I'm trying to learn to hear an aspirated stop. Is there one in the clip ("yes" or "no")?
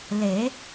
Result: no